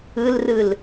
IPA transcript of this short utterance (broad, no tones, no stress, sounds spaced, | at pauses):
ɯ l r ɯ l